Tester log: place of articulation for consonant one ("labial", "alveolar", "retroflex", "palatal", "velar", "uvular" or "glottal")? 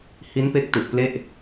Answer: glottal